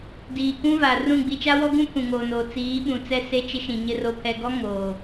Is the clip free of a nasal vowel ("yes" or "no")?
no